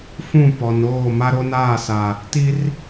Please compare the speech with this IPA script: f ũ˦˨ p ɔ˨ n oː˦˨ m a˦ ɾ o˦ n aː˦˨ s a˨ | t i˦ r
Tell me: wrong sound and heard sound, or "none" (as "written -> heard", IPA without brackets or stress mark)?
none